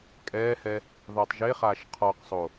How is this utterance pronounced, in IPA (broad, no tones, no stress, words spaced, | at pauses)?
kʼɛːhɛ | ðˤiːtˤʒeχaːʃ qʰɔqsˤo